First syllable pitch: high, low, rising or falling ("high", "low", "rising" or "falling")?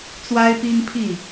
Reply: high